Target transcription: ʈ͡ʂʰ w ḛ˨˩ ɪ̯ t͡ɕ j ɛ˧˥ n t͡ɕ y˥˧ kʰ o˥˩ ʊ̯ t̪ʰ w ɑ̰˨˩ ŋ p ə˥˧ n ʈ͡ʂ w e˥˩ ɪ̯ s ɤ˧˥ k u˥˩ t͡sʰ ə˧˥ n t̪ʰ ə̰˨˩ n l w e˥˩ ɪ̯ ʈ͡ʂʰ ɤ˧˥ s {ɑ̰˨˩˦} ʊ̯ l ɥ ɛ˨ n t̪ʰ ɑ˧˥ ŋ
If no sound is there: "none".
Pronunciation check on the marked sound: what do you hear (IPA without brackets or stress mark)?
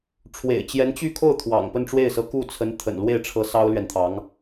ɑ˥